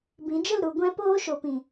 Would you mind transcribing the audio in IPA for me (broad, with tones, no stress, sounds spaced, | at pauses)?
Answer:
b ĩ˨˦ d͡ʒ ə˦˨ l ɾ u˧ ɡʷ ɛ̃˦ p oː˧ ʃ o˨ p ĩ˨